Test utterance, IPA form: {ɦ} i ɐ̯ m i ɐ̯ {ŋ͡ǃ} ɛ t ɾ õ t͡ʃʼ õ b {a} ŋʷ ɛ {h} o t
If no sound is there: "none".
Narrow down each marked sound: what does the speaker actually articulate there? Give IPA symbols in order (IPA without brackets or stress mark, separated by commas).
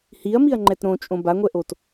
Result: h, ŋ͡ǃ, a, ʔ